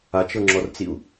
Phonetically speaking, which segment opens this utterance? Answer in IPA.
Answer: a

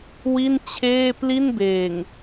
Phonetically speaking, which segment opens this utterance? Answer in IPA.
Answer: w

